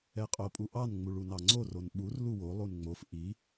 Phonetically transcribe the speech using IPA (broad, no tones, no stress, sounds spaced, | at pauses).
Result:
ɛ qʼ o pʼ u ʔ ɑ n ŋ͡m u ɭ u n ɑ ŋ͡ǀ o r o n ɓ u r l u w o lˠ u n ŋ͡m o f ʔ i